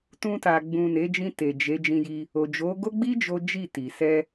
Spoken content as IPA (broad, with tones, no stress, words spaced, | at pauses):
tũ˧ta˨ ɡ͡bũ˨ ne˨˦d͡ʒĩ˧ te˨ d͡ʒe˨˦ d͡ʒĩ˧ji˧ | o˨d͡ʒo˨˦ɡo˦ ɡ͡bi˦ d͡ʒo˦d͡ʒi˦˨ti˨ sɛ˧